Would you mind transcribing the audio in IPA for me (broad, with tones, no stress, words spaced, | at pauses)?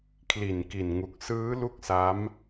kʰli˨˩nki˨˩nŋu˨˩k̚sɯː˦˥ lu˥˩k̚sa˦˥m